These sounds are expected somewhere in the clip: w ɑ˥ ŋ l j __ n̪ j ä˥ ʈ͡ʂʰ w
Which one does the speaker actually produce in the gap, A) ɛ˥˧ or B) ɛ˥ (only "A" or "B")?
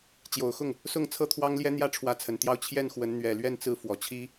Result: B